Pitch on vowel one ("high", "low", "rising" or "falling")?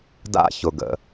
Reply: high